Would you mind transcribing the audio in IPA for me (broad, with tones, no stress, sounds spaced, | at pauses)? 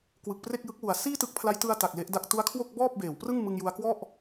k w ɯ˨˩ k̚ p r e˥˩ k̚ j ɯ˦˥ k̚ w u˨˩ a̯ s iː˥˩ t ɯ˦˥ k̚ pʰ l a˦˥ j t ɯ˧ a̯ t a˨˩ k̚ l e˦˥ ʔ d a˥˩ k̚ t u˦˥ a̯ kʰ w o˥˩ k̚ b ɔː˥˩ p̚ b eː˩˦ w p r ɯ˥˩ ŋ m ɯ˧ ŋ j u˧ a̯ k w ɔ˥˩ ʔ